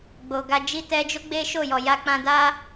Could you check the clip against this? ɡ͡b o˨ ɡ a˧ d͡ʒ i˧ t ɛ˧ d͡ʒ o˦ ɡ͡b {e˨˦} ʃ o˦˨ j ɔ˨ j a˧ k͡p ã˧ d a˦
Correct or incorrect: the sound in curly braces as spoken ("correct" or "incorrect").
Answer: incorrect